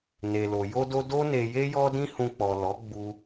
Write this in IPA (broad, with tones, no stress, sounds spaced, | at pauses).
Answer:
n e˨ l o˨ j o˧ d o˧ d o˦ n e˧ j e˦ j ɔ˦ d ĩ˦ h ũ˧ k͡p ɔ˨ l ɔ˨˦ ɡ͡b u˧